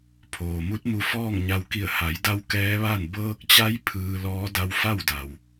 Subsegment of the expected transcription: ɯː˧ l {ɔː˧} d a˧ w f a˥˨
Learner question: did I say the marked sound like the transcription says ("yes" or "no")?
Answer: no